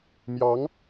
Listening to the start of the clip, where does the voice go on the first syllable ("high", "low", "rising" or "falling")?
rising